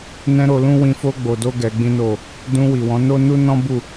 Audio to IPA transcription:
n ɛ̃˧ ɾ o˧ l ũ˦ w ĩ˧ f o˦ ɡ͡b o˧ d o˦ ɡ ɛ˧ ɡ͡b ĩ˦ n o˦˨ | d ũ˧ w i˨ w ɔ̃˨˦ n o˦ n u˦ n ɔ̃˦ b u˦˨

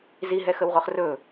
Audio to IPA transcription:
z i ɦ ɛ x ə w ʁ o χ r ɵ

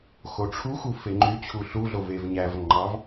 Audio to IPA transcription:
x o ʈ͡ʂʰ u x u f e ŋ͡ǃ y t͡ɕʰ u ɬ u ɮ o v e v ɲ æ v ŋ͡ǃ ɑ v

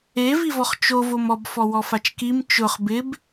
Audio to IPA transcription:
e v i v ɔ χ t͡ʃ o v o m ɔ b f ɔ w ɔ f a t͡ʃ k i m t͡ʃ ʊ χ b ɪ b

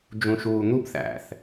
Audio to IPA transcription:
d͡ʒ ũ ʃ uː n̪ u b θ æ̰ θ

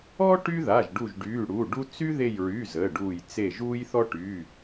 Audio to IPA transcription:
ɔ˦ ʈ y˦ ð a˩˧˩ ʒ ɖ u˧˩ ʒ ɖ yː˩˧˩ ɽ u˩˧˩ ɖ u˦ t͡s y˦ ð e˧˩ j ɹ y˩˧˩ z əː˩˧˩ ɖ uː˧˩ j t͡s e˧˩ ʒ uː˦ j θ ɔ˦ ʈ yː˩˧˩

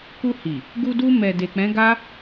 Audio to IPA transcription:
k u˧ h i˨ | ɡ u˧ d u˧ m ɛ˨ d e˨ k͡p ɛ̃˨˦ ɡ a˦

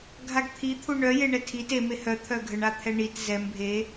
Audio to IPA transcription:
ɡʱ a ɡ t̪ʰ i t̪ʰ u ɳ œ j e ɳ ɛ tʰ i t e m e h œ t̪ʰ œ ɡʱ ə ɳ a t̪ʰ ɛ ɳ i t z ɛ m bʱ e

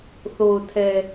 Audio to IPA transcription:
θ o˨ ʊ̯ tʰ ɛ˨

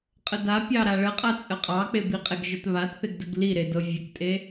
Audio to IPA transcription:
qʼ ə d a pʲ ɑ ɾ a ɭ ə qʼ a t͡sʼ ə qʼ ɑ k͡p e b i qʼ e ɡ ʒ ə t β a t θ e ɡ d ə ɡ l i ɾ e d ɤ vʲ ə k tʼ e

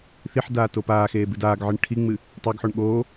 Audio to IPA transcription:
θ i ħ d aː t o p aː x eː b ɨ d aː ɡ ʕ ɨ ɳ ʈʰ i ŋ͡m ɨ | tˤ o ɡ ħ o ɳ ɠ oː

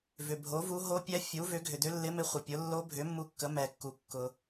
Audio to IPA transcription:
v ʏ˩ bʱ o˩˥ v u˧˥ ɦ o˧˥ pʲ ɛ˧˥ fʲ u˩˥ v ʏ˩˥ ɡʱ ʏ˩ d ʏ˧˥ lː ɪ˧˥ m ɪ˧˥ χʷ ə˩ pʲ ʊ˩˥ lː o˧˥ bʱ ʏ˩˥ mː u˧˥ kː ə˩˥ m ɛ˩ kː u˩ kː ʊ˩

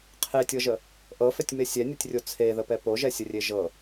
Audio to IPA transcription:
qʰ e tʲ ɤ ʒ ə | ʔ ɤ f ɛ tʲ m e sʲ ɛ nʲ ɤ tʲ rʲ o t͡sʰ e ð ə p ɛ p o ʒ ɛ sʲ ə rʲ e ʒ ɤ

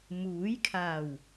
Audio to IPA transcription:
m uː˨˥ j kʰ aː˨˩ w

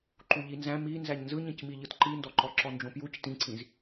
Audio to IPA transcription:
ǃ u ʎ i n z æ̃ m i n z æ ɲ n z ɯ ɲ ĩ c m i ʎ ɯ t ǃ i n d ɔ ǃ ɔ ǁ ɔ n d͡ʒ õ p j u c t ĩ ǀ ĩ z

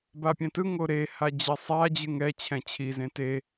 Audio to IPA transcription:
b a pʲ ɛ̃ t ɯ ŋ o ɾ e h a d͡ʑ ɛ sˤ a d͡ʑ ɯ ŋ ɛ t͡ɕʰ ɛ̃ t͡ɕʰ i z ẽ t e

